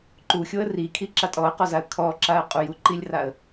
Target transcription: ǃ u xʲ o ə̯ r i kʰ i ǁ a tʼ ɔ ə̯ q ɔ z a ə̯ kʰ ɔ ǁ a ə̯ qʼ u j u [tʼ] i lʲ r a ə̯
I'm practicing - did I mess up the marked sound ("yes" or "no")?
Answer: yes